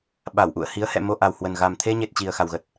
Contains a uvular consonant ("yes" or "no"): no